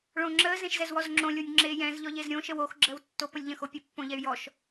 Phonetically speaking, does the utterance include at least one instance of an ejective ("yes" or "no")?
no